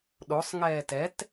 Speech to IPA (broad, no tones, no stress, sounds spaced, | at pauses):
ɗ o sˤ ŋ ɛː t ɛ t